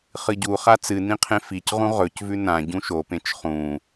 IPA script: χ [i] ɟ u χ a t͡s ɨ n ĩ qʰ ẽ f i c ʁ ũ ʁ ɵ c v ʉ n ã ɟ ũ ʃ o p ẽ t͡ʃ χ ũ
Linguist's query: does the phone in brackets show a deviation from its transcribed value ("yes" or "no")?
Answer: yes